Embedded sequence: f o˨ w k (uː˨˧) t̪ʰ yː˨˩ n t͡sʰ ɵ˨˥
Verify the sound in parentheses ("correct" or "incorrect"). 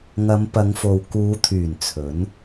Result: correct